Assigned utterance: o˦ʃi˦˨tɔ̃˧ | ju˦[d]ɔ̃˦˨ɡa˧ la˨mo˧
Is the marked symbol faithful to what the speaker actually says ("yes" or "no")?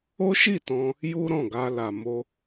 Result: no